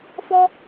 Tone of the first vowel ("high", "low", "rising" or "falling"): high